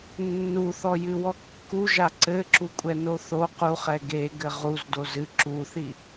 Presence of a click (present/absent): present